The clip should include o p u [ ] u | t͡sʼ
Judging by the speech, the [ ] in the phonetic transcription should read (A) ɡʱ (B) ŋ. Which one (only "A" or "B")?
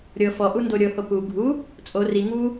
A